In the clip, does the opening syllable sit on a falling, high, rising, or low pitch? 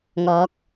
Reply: rising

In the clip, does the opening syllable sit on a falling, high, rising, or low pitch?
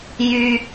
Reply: high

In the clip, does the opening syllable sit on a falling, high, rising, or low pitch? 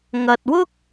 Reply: low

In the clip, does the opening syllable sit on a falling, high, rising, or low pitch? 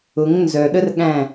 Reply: rising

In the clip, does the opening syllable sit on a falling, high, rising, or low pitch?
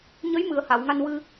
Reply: rising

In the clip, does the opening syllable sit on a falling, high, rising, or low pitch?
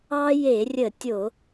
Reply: high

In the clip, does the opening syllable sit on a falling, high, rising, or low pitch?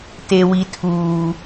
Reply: low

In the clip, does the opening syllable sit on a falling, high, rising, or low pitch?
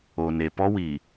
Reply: low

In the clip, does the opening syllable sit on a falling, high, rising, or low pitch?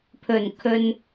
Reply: low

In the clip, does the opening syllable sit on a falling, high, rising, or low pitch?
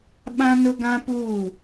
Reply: high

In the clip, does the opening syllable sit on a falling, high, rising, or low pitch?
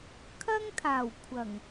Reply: high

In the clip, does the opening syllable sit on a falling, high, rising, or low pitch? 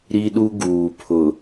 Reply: high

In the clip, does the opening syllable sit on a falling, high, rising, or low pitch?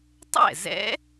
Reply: falling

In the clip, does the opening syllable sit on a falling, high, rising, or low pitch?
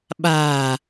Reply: low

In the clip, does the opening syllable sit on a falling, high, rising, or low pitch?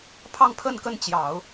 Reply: falling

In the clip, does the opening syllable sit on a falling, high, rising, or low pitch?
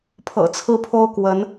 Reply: low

